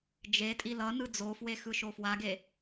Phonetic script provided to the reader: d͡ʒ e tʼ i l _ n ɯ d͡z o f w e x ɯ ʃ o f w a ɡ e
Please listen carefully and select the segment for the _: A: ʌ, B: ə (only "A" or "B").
A